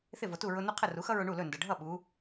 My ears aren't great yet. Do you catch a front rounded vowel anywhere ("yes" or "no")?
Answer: no